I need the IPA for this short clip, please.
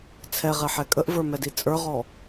t͡sʰ ɛ ʁ ɛ ħ ɛ kʼ ə ʔ v ə˞ m ɛ d i t͡sʼ ə˞ ʁ ɔ

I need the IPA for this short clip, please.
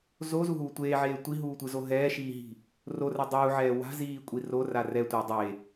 z o z u ɦ uː tʷ eː ʕ eː tʷ i ɦ uː tʷ ɯ z o ɦ ɛː ʃ iː ɦ i̤ | r o r ɛ dˤ uː ʕ ɛː w a̤ z iː kʷʼ i r o r a r ɛ tʷ e dˤ e

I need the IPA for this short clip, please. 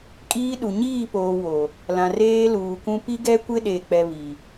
kʼ iː˦ ɗ u˨ ɲ iː˦˨ p oː˨ w o˨ | l ã˨ r eː˦ l uː˨ k ũ˦ p i˦ ɡ ɛ˦ kʷ ɪ˦ ɗ e˨ k͡p ɛ˨ β i˨

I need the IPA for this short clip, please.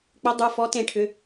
k͡p ʏ˨˦ dˤ u˩˧˩ f ɔ˨˦ t ẽ˨˩˦ ʈʰ ʏ˩˧˩

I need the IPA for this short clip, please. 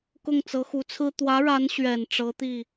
k ʊ˥˩ ŋ t͡s ɤ˧˥ x u˧˥ t͡sʰ ɹ̩˥ t̪ w ä˧˥ ɻ a˧˥ n ɕ ɥ ɛ˨˩ n ʈ͡ʂ ɤ˧˥ t̪ i˥˩

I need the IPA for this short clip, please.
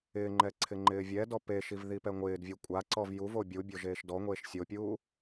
ɪː ŋ͡ǃ ɛ ǀʰ ɪ ŋ͡ǃ ɪː vʲ ɛ d ɔ p e ʃ i v ð i p ɛ ŋʷ ɪː d vʲ u kʷʼ a ǀ ɔ v j u v o bʲ u bʲ o ʒ eː ʃ d ɔ ŋʷ eː ʃ sʲ o pʲ uː

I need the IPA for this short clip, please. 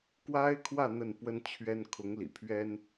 k w a˥ ɪ̯ kʰ w ä˥˧ n̪ ə˥˩ n p w ə˥ n t͡ɕʰ ɥ ɛ˥ n kʰ ʊ˧˥ ŋ l ḭ˨˩ pʰ ɥ ɛ˥ n

